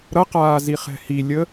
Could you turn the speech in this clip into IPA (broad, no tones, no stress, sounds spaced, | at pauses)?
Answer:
ɾ ʌ q aː z i χ ɛ̤ h i lʲ ə